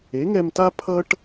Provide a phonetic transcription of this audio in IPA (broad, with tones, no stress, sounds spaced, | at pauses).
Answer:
e˩˥ ŋ ɛ˧ m t a˥ pʰ ʌ˥ ʈ